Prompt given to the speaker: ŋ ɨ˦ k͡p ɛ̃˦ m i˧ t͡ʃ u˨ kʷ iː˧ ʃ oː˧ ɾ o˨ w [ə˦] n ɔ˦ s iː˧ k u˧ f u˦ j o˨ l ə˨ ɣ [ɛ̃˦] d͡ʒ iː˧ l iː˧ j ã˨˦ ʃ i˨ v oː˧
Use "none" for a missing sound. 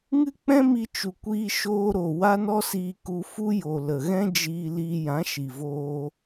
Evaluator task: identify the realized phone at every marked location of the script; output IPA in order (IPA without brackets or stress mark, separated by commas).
a˦, ɛ̃˦